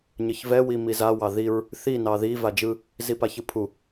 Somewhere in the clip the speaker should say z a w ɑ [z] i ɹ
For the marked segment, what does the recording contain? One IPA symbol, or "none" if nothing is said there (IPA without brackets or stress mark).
ð